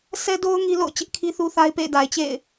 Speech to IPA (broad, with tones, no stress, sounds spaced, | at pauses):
sʰ ɛ˦ d o˦ ʊ̯ ŋ i˦ l o̰˦˨ ʊ̯ t͡ɕ ɪ˦ ʔ kʰ i˦ θ u˦ θ a˦ ɪ̯ p ḛ˦˨ ɪ̯ d a˨ ɪ̯ t͡ɕ ḛ˦˨ ɪ̯